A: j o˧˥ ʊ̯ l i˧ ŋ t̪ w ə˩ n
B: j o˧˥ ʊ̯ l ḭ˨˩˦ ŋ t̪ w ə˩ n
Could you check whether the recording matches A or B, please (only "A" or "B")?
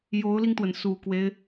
A